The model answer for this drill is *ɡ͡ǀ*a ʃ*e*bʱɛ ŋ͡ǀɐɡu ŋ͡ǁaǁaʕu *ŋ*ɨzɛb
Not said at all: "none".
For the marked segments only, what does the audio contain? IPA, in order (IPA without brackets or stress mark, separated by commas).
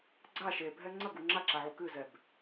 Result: ɡ͡ǀ, e, k